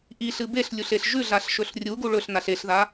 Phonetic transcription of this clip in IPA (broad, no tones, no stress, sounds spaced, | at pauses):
ʔ i ɬ ɨ b e ɬ lʲ u ɬ e ɬ ʒ ʉ ɮ a ɬ ʃ ɵ ɬ rʲ u ɡ u ɭ ɵ ɬ n a ɬ e ɬ ð a